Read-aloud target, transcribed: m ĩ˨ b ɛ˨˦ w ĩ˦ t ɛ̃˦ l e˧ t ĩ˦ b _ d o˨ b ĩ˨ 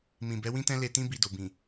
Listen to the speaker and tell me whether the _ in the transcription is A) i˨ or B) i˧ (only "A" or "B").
B